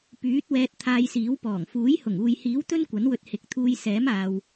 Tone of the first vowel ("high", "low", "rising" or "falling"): rising